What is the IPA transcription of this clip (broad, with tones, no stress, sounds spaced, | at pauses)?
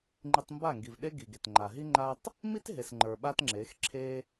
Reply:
ŋ͡ǃ i˧ tˤ m b a˦˨ ŋ ɡ i˨ v ɗ e˦ ɡ i˨ ɡ e˨ t ŋ͡ǃ a˨ ɦ i˦ ŋ͡ǃ a˦ tˤ | m i˦ t ɦ e˨ s ŋ͡ǃ ə˞˨ ɓ a˦ t ŋ͡ǁ e˨˦ x ǁʰ e˦